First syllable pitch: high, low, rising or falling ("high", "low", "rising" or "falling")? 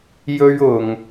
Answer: high